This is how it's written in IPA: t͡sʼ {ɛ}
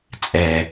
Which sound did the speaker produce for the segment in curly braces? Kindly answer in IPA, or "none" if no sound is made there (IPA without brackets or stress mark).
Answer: ɛ